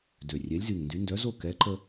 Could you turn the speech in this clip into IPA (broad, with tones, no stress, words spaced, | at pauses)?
dø˨˩ rʲɛ˨˥lʲzy˨˩ŋndy˨˥ ndœ˨˥zo˥˨ kɛ˨˥ ǃə˦